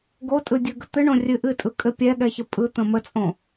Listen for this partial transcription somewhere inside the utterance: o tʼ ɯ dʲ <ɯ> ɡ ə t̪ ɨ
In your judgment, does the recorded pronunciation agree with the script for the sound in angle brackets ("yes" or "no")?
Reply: yes